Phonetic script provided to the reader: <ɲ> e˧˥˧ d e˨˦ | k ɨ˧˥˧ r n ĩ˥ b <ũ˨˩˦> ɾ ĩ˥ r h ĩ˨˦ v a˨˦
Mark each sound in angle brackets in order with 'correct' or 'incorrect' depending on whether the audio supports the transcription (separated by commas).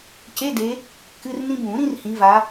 incorrect, correct